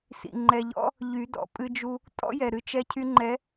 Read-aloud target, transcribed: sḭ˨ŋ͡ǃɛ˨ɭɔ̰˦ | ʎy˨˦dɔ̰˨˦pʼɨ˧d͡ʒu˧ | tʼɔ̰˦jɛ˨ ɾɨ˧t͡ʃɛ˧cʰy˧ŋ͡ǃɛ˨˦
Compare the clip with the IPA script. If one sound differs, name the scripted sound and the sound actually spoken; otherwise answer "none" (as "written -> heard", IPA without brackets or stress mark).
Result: ɭ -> ʎ